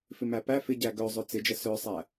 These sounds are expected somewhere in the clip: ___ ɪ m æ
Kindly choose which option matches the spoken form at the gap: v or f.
f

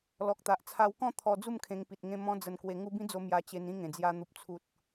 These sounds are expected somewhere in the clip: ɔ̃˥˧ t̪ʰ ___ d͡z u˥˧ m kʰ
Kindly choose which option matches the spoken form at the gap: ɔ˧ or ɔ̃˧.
ɔ˧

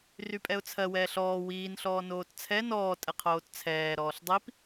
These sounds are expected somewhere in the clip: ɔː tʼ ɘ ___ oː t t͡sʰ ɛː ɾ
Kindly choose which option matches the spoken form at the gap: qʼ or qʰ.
qʰ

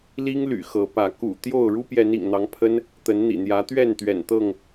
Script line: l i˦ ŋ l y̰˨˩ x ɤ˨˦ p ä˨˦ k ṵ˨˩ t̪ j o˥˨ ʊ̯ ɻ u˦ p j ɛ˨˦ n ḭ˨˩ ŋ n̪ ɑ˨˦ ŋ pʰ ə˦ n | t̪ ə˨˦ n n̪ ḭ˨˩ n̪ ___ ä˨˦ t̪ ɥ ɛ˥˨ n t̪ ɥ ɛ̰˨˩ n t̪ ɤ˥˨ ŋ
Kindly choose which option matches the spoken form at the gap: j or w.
j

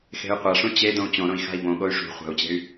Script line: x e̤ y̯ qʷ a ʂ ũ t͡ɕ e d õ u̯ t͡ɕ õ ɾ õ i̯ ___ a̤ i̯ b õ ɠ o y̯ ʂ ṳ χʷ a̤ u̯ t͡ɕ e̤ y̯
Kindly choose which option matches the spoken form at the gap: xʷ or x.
x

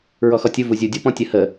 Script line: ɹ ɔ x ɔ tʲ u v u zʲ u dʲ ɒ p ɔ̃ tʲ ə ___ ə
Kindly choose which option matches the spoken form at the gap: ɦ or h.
h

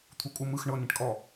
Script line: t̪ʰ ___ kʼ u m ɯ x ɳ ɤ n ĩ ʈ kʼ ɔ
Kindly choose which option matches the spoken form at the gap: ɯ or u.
u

